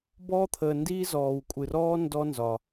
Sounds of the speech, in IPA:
bɔː˥t̪ʰəː˧ndiː˥ zɔː˧wkʷʼɨ˧rɔː˥ ndɔ˥nzɒ˧

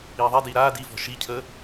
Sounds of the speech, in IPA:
iːðˤidiː ɾaː divɔ̤ ʃicʰəː

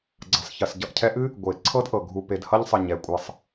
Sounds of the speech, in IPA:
ɡ͡ǀʌ˩sˤçə˩s ɟʌ˨ʔcʰɛ˦ʔɨ˥ | ɡʷe˩ ǀʰɤ˥dʔɤ˩ɡʱu˨ pe˩dhʌ˦ʎsˤə˩ ɲɛ˩kʷʼɤ˨sˤ

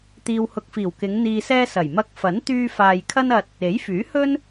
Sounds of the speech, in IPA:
t̪iː˨whʊ˨k̚fiː˨˩w kɪ˨˧ŋ n̪iː˨sɛː˧ sɐ˨˩j mɐ˧k̚ fɐ˨˥n t̪yː˧faː˨j kʰɐ˥nɐ˧t̚ | e˨˥jfyː˨˥hɵ˥n

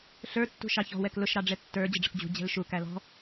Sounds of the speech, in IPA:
ɬə˞ tːṳʃɑçɔ̤ wɛklʊʃ ɾɑɖ͡ʐɛtːə˞ d͡ʑəɖ͡ʐəkd͡ʑṳ d͡ʑɛ̤lʃu kælɔ̤

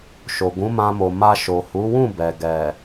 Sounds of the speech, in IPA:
ʃo˨ɡũ˨˦mã˧mo˨ ma˧ʃo˨hu˨˦wũ˦˨ bɛ˨ ɡɛ˨

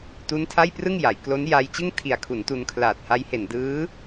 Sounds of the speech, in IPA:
tu˦˥ntʰa˥˩jprɯ˥˩ŋja˩˦j klo˦˥n ja˧jt͡ɕɯ˥˩ŋtʰi˨˩a̯ kʰu˩˦ntu˧nkʰlaː˨˩t̚ha˦˥j he˨˩ndɯː˦˥

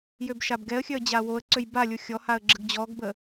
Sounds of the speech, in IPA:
jøbʃabɡɛə̯xʲœə̯ d͡ʑawoə̯ǀøj balʲo xʲɔhaə̯ ɡ͡ǁəɡd͡ʑɔɡbə

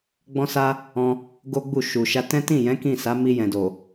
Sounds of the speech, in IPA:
ɡ͡bɔ̃˦sa˦ | ɔ̃˧ | ɡo˦ɡ͡bu˦˨ʃu˨ ʃa˧ tɛ̃˦ tĩ˦˨jɛ̃˨˦ kĩ˦˨ sa˨˦mi˧jɛ̃˨ do˨

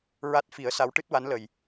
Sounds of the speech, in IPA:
ɹa˦˥t̚fi˨˩˦ə̯sa˧˥w ʈɨ˦˥t̚wa˧˥nlə˨˩j

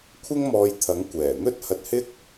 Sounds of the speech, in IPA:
kʷʰɪ˥ŋ mɔː˧jt̪ʰɐ˨˥ŋ kʷɛː˨˩ n̪ɵ˥t̚ hɐ˧t̚hɪ˥k̚

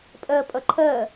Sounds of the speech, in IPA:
pʼɜpʼʌ ǃʰɜ

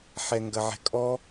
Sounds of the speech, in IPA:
ħɛŋɡɐʕɛ̤kʼɔ

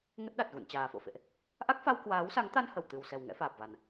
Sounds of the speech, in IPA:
ŋə˦˥t̚ɗa˨˩t̚ ɣṵ˧˨nt͡ɕaː˨˩fo̰˧˨fḛ˧˨ʔ | ʔa˦˥k̚fa˧w kwaː˨˦wsa˨˦ŋt̪a˧n hə˧˩wt̪ɨ˨˩wsɛ˨˩w ŋɛ̰˧˥faː˨˩p̚va˨˩n

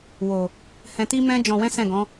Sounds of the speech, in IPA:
wo˨ | hɛ̃˧ti˦mɛ̃˦ d͡ʒɔ̃˧wɛ̃˦sɛ̃˦˨ɡɔ̃˨˦

